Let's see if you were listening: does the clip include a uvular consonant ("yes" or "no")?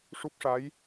no